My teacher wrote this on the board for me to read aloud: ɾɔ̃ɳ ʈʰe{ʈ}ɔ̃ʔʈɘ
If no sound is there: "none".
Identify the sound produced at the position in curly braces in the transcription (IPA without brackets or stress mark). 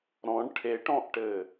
ʈ